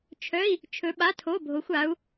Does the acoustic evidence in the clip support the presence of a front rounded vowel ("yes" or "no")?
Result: yes